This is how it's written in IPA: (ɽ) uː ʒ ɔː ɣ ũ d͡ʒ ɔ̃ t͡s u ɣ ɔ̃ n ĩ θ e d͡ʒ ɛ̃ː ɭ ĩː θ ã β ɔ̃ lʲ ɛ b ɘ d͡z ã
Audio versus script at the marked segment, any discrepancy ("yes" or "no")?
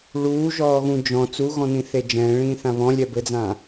yes